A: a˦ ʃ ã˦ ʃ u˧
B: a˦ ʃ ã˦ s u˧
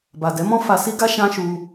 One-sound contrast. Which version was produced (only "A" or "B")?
A